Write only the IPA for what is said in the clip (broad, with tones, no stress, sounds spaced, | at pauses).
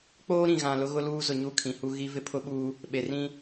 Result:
k͡p oː˦ ɾ ĩ˨ ɣ ã˨ l ʊ˦ ɣ ʊ˦ l uː˦ z ʊ˨ ɲ u˦˨ kʰ ĩ˨ h u˦ ɣ i˦ v ɪ˦ pʰ ʊ˦ ɓ uː˦ | ɓ e˨ r ĩ˦